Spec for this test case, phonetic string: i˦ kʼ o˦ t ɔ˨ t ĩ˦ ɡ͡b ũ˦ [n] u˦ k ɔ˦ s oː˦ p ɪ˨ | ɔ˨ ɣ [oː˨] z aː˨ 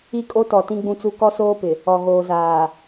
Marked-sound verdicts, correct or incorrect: incorrect, correct

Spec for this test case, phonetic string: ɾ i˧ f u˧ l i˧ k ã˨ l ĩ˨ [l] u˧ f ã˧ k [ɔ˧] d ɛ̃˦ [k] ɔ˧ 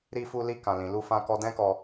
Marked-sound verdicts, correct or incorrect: correct, correct, correct

